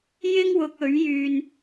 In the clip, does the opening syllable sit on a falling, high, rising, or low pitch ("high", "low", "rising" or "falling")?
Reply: high